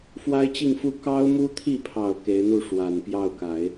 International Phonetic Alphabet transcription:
f w a˥ ɪ̯ t͡ɕ i˥˧ ŋ f u˥˩ k ɑ˥ ʊ̯ m u˥ t̪ʰ i˥˩ pʰ ɑ˨˩ ʊ̯ k e˧˥ ɪ̯ n̪ u˥˩ ʂ w a˨˩ n p j ɑ˥˩ ʊ̯ k a˨˩˦ ɪ̯

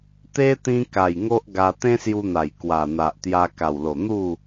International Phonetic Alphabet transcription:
t̪ e˦ t̪ ĩ˧ k a˨˩ j ŋ o˦ ʔ ɡ a˧ t̪ ẽ˦ s j u˧ n̪ a˨˩ j k w a˨˩ n̪ a˨ ʔ t̪ j a˧ k a˨˩ w l o˨˩ n̪ u˥˧

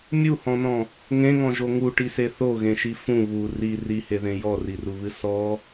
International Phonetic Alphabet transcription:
mʲ u h ɔ̃ n ɔ̃ | ŋ ẽ ŋ ɔ̃ ʒ o ŋ u ʈ i s e θ o ɣ ẽ ʃ i f ũ β u r i r i h e ð ẽ j ɔ r i r u β ɨ s ɔ

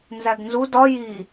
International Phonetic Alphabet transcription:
n z æ ɡ n z u d ɒ j i

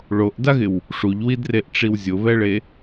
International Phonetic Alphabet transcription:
ɭ o ʔ d a ɣ ɪ w | ʂ u ʎ w i d r e ʔ ʈ͡ʂ i w zʲ ʊ β ɛ ɭ e

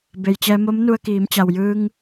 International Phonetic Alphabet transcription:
b e˩ j t͡ɕ ɛː˧ m o˧˥ m n u˧ ə̯ k iː˩˧ m t͡ɕ a˩ w j ɯː˧ ŋ

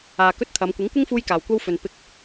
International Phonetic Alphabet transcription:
aː˨ k ɵ˥ t̚ t̪ʰ ɐ˨˧ m kʷ ɪ˨˥ ŋ kʷ ɪ˥ ŋ f uː˥ j k aː˨ w kʷ ɐ˥ w f ɵ˨ n p ɪ˧ k̚

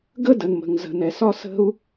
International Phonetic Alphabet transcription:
ɡ ə˥ d ə˩ n m ə̤˩ ŋ z ə̤˩ n ɛ˩ s ɒ˥ s ə̤˥ u̯

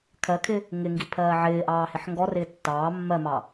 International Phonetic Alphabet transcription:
kʰ ɜ kʰ ɪ | ŋ ɪ ŋ ɡ i pʰ ɜː ʕ ɪː ʔ ɑː h ɪ ħ ŋ ɡ ɔ r ɪː tː ɑː mː ɜ m ɑ

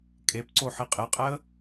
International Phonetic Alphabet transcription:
kʼ e p ǀ o ħ i qʼ e qʼ ɛ ə̯

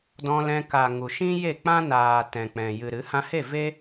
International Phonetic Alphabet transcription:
d ɔ̃˧ l ɛ̃˧ k a˨ ŋ u˨ ʃ ĩ˦ j e˦˨ k͡p ã˦ n aː˨ t ɛ̃˨ k͡p ɛ̃˨ j ɨ˨ ɾ ɨ˨˦ h ã˦ h e˦˨ v e˦

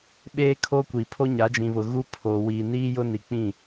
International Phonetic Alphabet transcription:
ɓ eː˦ kʰ o˦ kʷ iː˨ pʰ o˦ ɲ a˨˦ d͡ʒ ĩ˨ β ʊ˨ ɣ u˦ pʰ oː˨ w iː˨ n iː˦ j ʊ˦ n i˨ k͡p ĩ˦˨

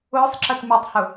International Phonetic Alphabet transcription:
ʊː sˤ ǁ ə t m i tˤ h ʊ

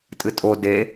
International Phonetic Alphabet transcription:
tʼ ɨ tʼ o d e

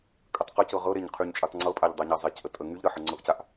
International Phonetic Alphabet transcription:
kʼ ə tˤ q ə c ɤ ʁ ɤ ɾ e ɲ qʰ y ɲ t͡ʃʼ y tˤ ŋ͡ǀ ɤ pʼ a ʎ dˤ a ɲ a zˤ e c ʔ ə tʼ ə ŋ y ʎ ɾ ə ħ ɤ ŋ͡ǀ ɤ ʔ c a ʔ

